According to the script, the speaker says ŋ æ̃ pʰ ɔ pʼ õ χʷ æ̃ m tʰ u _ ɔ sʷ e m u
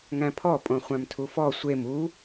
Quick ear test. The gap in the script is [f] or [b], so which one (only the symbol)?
f